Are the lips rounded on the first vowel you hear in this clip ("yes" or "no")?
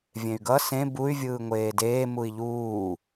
no